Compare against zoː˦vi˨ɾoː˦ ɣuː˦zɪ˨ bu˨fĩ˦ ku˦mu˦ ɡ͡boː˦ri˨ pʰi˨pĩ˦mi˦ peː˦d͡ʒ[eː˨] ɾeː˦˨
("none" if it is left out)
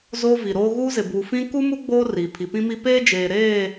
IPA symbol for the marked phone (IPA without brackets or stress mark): eː˨